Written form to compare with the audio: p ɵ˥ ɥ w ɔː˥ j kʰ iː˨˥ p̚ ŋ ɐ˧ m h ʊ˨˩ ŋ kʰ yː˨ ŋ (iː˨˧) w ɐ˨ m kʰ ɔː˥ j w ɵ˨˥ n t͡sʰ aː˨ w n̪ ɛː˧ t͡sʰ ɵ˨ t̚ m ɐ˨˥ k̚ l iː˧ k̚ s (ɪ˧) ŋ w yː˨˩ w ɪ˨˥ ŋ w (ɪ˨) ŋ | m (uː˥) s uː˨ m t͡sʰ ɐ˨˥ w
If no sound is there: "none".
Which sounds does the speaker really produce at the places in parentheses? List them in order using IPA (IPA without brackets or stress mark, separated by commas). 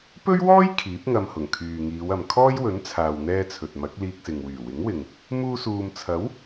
iː˨˧, ɪ˨, ɪ˨, uː˧